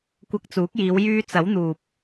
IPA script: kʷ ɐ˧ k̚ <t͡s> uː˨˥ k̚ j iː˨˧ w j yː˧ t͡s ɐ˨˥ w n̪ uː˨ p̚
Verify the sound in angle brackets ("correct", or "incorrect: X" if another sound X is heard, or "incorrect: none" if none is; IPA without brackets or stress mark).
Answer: correct